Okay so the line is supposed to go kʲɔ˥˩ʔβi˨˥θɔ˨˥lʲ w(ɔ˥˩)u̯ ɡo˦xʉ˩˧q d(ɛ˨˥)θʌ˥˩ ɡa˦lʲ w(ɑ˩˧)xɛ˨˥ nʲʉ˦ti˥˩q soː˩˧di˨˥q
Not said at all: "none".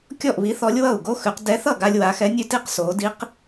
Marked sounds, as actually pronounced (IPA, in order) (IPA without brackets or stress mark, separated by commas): ʌ˥˩, ɛ˨˥, a˩˧